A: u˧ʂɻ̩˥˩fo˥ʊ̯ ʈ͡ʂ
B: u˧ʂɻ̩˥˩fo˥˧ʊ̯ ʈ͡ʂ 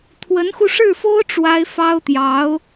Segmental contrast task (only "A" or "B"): A